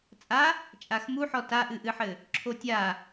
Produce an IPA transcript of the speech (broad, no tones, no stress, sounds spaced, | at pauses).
t͡sʼ a | t͡ʃʼ a x m u ħ ɔ t a ʔ ɨ ʔ ɨ ħ ɘ | ǁʰ o tʲ a